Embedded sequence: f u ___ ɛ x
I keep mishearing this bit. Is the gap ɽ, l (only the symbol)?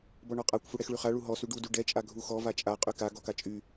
ɽ